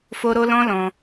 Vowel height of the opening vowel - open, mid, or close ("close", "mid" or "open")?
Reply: mid